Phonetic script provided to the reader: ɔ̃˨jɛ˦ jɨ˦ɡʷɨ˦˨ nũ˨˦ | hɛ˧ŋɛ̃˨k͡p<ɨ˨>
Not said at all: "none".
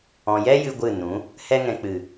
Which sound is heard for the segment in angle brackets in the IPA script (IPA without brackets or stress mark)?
ɨ˨